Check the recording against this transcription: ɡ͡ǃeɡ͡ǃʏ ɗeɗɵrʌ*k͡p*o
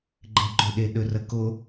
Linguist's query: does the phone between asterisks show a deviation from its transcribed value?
yes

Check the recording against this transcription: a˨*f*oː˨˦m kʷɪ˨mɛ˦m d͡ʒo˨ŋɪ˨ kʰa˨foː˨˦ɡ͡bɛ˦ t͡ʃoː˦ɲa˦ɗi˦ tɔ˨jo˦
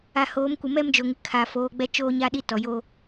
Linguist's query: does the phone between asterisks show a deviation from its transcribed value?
yes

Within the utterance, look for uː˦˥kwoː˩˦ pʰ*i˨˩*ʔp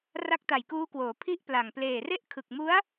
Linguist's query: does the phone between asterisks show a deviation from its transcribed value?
yes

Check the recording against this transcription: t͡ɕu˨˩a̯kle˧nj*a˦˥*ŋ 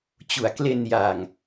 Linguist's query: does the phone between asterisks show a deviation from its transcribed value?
yes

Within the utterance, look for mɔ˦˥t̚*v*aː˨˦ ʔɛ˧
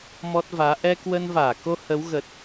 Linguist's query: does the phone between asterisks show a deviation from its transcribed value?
no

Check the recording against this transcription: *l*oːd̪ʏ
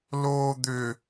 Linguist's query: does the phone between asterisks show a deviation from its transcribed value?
no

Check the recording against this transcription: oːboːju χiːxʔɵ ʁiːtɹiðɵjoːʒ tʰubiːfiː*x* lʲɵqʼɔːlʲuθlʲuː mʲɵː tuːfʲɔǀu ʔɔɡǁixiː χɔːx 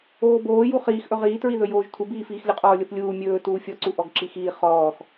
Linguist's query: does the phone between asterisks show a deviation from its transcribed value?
no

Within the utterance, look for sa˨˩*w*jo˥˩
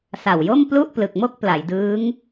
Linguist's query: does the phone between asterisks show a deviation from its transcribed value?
no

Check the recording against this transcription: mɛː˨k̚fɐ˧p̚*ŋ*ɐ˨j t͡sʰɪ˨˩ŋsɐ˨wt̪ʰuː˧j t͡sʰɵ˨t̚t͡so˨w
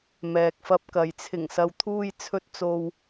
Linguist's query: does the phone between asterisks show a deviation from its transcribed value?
yes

